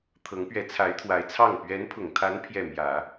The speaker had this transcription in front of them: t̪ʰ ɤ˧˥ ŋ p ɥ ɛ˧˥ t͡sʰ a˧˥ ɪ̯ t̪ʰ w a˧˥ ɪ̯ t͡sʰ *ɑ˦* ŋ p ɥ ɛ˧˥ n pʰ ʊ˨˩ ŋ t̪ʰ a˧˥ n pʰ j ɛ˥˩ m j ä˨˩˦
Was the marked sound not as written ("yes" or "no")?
yes